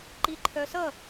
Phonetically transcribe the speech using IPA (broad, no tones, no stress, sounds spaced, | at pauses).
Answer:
ǃ i ǃʰ œ s ʌ